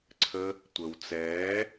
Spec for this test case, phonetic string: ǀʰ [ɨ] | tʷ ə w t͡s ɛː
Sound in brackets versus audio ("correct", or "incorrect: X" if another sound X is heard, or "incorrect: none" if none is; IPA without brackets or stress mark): incorrect: ə